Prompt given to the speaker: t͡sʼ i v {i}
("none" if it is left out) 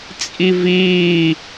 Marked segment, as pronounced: iː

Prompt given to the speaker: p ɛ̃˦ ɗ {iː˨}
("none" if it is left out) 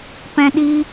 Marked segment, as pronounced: iː˦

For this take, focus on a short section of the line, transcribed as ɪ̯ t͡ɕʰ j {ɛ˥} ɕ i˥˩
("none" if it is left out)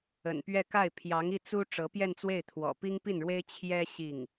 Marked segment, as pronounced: ɛ˥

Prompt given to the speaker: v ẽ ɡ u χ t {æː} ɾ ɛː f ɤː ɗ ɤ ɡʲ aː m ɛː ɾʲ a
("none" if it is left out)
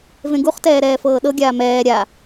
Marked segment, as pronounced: ɛː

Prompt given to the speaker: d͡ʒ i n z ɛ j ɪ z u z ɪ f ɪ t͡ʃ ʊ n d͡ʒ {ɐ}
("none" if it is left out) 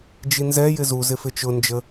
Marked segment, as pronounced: ə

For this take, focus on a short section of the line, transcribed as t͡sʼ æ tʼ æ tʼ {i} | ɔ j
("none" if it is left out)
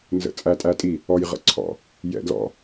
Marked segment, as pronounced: i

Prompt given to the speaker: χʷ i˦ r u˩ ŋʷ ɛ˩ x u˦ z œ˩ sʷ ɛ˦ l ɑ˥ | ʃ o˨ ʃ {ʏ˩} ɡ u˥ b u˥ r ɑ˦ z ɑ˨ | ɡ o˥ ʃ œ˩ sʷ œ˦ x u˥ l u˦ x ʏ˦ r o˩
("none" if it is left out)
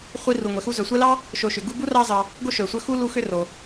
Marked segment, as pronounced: ʏ˩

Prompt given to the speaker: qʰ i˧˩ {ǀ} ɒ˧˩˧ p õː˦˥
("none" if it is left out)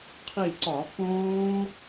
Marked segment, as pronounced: ǀ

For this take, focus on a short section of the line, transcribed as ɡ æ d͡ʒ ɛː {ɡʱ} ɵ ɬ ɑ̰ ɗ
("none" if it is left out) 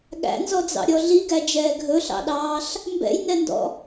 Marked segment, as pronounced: ɡʱ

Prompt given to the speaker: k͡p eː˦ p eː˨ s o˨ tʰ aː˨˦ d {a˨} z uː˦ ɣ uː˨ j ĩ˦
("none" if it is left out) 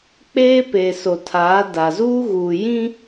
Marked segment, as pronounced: a˨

